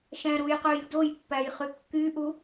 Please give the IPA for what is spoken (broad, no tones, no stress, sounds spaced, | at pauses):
ʃ æ̃ ɾ u j q ø j d o j pː æ j χ y kː y ʔ u